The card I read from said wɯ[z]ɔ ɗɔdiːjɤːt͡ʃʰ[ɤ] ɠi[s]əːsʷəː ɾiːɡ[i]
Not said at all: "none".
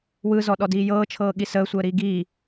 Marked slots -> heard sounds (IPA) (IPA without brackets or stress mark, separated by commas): z, ɤː, s, i